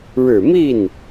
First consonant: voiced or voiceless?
voiced